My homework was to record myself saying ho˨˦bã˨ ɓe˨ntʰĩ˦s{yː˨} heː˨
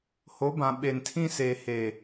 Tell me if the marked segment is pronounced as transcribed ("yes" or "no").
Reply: no